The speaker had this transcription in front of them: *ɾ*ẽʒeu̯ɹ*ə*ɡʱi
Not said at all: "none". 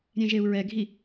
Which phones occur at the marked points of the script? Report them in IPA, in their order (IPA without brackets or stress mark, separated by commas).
ɾʲ, ɛ